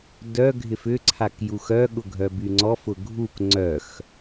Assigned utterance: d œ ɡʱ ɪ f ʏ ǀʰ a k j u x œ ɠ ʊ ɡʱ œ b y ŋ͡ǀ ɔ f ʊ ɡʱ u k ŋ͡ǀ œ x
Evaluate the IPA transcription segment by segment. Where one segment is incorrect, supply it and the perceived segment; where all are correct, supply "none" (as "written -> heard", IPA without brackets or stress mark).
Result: none